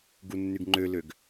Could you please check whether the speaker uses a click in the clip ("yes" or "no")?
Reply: yes